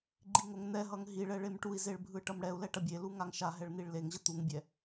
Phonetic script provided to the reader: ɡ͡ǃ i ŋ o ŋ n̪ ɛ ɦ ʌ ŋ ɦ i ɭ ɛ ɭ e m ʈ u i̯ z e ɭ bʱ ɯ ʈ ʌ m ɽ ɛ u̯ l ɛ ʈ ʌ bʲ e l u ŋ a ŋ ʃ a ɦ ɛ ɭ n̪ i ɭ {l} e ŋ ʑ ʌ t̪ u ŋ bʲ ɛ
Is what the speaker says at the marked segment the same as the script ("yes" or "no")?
yes